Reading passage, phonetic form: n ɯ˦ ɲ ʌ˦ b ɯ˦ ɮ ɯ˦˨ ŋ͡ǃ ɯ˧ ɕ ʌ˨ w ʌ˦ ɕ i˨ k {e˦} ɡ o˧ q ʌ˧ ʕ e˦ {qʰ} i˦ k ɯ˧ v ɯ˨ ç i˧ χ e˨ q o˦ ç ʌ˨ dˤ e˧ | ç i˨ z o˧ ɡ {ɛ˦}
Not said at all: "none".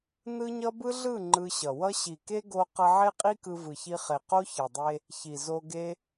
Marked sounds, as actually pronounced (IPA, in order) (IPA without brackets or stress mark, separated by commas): e˦, qʼ, e˦